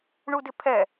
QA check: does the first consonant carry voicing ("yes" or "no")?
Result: yes